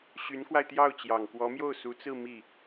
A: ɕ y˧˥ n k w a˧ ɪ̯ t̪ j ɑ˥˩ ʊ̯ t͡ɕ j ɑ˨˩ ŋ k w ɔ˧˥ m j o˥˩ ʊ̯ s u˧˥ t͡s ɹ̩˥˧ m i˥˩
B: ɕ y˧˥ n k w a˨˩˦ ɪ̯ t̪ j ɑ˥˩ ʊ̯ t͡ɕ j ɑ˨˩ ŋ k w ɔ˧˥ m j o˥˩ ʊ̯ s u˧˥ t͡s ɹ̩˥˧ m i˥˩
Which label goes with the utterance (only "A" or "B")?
A